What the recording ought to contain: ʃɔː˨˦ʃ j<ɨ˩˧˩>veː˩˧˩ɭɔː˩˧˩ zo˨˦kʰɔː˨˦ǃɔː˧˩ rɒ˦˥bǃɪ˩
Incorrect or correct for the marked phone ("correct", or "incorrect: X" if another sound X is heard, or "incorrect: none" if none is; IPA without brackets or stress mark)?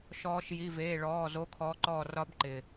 incorrect: i˩˧˩